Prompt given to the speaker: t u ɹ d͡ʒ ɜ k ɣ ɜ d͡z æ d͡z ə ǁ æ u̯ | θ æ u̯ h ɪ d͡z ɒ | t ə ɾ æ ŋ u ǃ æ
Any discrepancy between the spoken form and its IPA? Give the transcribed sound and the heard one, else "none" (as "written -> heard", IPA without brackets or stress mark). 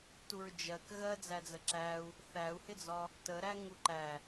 none